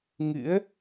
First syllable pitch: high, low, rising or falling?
rising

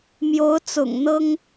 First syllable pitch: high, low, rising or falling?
rising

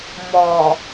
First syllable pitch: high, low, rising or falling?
low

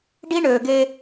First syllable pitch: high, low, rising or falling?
high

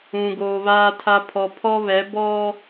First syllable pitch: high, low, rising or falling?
low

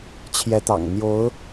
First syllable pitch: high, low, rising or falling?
rising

